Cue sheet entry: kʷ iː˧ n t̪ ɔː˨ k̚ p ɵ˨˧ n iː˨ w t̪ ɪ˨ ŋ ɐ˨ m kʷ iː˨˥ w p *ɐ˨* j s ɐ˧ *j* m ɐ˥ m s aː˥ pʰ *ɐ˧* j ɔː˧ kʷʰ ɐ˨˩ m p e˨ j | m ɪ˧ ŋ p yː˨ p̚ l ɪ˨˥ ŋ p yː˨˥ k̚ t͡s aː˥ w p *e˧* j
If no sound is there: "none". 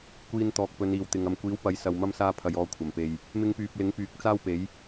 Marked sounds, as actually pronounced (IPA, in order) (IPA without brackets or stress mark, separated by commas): ɐ˨˥, w, ɐ˧, e˨˥